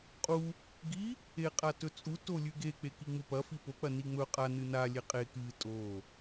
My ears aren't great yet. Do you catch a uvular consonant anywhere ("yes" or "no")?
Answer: yes